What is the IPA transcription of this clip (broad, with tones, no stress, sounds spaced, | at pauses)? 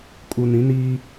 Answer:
kʼ u˨ n ĩ˨˦ n iː˦